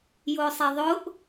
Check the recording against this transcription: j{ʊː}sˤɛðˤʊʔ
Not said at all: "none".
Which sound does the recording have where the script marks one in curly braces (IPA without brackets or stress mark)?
ʊː